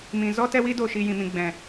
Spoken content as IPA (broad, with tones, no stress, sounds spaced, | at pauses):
m ĩ˨ z ɔ˦ t ɛ˦ w i˦ d oː˦˨ ʃ iː˧ j ĩ˨ m ĩ˨ ɡ͡b ɛ̃˨